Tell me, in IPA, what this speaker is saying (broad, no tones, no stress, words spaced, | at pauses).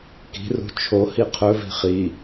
ki̤rṳ t͡ʃʰohi qʰɵvi̤ χi